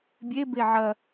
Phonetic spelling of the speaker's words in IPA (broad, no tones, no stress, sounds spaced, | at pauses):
bʲ e b e ʕ ɐ